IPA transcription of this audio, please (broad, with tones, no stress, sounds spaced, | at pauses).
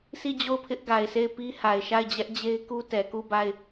sʰ i˦˨ d͡ʑ o˦˨ ʊ̯ pʰ ɪ˦ ʔ ɡ a˨ ɪ̯ sʰ e˦˨ ɪ̯ p i˦ h a˨ ɪ̯ ʃ a˦˨ ɪ̯ d͡ʑ ɛ˦ ʔ d͡ʑ e˦ ɪ̯ k u˦ t ɛ˨ k u˦˨ b a˦˨ ɪ̯